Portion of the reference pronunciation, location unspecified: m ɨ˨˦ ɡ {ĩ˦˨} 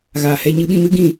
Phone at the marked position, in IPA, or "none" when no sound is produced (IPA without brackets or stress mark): ĩ˦˨